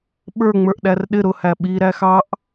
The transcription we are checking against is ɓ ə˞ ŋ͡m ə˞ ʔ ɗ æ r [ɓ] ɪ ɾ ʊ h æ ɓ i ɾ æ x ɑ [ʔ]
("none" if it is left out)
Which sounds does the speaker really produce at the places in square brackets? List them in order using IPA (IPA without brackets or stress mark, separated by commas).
ɗ, ʔ